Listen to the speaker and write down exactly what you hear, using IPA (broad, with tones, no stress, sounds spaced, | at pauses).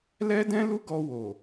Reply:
l ɛ˦ d ɛ̃˦ l u˦ ɡ ɔ˧ w o˨